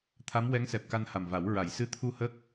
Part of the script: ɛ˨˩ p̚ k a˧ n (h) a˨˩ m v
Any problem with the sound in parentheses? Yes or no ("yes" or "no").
no